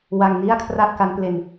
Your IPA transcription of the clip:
wa˧ŋni˥˩a̯ kʰra˥˩ʔ ka˦˥nple˧n

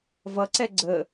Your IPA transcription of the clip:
vʌǀɛ ɡ͡ǀə

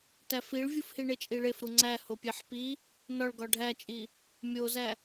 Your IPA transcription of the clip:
tæfiɭvʲufhi ɳet͡ʃʼiɭef ɾuŋ͡ǀæ hopʲeħpi | nɒɭɡɒ ɖʱæt͡ʃʼi | mʲozæ

